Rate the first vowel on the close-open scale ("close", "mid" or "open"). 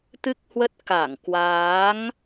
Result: close